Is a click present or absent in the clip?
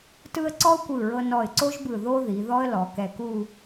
present